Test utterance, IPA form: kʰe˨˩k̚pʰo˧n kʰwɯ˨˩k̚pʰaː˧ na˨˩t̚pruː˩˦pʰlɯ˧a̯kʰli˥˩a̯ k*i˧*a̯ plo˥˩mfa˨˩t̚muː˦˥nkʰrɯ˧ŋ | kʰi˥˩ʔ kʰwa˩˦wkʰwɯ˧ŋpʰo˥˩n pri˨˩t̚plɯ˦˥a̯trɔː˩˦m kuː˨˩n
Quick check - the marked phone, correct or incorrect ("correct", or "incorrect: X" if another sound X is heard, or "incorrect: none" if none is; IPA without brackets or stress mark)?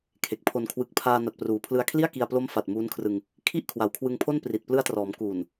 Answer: correct